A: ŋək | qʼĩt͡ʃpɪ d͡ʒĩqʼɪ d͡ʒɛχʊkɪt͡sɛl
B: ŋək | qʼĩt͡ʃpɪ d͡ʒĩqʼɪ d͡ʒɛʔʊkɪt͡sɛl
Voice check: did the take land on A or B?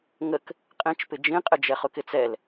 A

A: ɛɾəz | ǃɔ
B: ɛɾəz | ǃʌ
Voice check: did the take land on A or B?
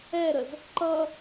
B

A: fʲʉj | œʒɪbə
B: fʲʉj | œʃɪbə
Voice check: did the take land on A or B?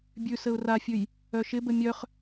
B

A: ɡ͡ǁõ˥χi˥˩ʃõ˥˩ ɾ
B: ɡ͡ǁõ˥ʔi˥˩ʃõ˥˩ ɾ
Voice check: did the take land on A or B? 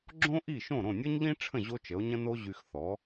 B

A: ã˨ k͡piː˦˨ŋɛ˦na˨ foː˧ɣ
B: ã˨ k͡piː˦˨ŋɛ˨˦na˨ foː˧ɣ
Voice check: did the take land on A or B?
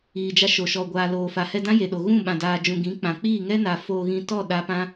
A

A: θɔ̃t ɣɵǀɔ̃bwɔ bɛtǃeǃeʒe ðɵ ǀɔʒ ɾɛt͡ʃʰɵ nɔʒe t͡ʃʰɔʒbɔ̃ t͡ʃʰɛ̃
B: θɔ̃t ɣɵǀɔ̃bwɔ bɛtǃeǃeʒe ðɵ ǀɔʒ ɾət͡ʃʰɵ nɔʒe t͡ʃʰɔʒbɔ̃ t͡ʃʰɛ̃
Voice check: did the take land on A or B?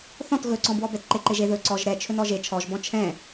A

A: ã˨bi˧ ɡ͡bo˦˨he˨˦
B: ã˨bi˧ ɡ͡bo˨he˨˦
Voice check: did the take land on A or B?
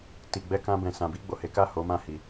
B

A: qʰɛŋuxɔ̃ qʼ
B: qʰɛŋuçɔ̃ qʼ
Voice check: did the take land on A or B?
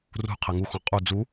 A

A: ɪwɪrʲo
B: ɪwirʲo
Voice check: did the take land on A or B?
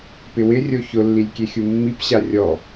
A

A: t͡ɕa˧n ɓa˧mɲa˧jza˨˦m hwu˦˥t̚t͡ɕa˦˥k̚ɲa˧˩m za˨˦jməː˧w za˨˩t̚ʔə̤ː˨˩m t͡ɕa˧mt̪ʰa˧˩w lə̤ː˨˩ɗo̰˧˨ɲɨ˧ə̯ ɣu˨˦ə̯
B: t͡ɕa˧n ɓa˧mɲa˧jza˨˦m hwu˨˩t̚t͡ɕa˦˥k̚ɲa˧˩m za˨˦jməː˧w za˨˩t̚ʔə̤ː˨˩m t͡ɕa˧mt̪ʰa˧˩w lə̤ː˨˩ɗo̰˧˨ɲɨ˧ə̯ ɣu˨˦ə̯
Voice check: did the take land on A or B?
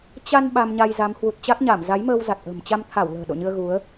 B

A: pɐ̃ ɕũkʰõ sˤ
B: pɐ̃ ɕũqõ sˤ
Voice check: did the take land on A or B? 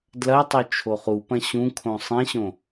A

